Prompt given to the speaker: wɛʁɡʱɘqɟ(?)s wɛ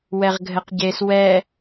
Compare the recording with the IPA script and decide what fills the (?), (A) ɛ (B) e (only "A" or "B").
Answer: B